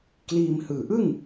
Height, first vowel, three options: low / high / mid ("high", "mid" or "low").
high